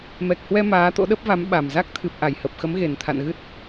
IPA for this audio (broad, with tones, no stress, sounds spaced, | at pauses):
m ɛ˨˩ k̚ h w ɛ˧ m aː˨˦ t̪ o̰˧˥ ɗ ə˦˥ p̚ v a˨˦ m ɓ a˨˩ m z a˦˥ k̚ t̪ʰ ɨ˨˩ p̚ ʔ a˧˩ j h ə˨˩ p̚ x ə˨˦ m ɣ e˨˩ n t̪ʰ a̰˧˨ n ɣ ɨ˦˥ t̚